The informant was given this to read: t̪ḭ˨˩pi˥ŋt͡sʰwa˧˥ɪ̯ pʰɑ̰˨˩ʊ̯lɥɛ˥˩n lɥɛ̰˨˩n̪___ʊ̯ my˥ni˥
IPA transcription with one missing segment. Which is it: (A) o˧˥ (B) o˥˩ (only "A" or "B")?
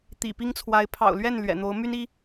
A